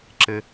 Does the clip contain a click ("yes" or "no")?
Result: yes